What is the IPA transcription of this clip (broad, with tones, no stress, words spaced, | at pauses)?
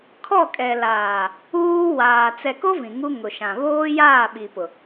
kʰɔ˦˨kʼɛ˨laː˨ | uː˦ waː˨ t͡sɛ˨ko˦ vĩ˨ŋu˦ ŋʊ˨ ʃã˨βoː˦ jaː˦˨ɓi˨pʊ˨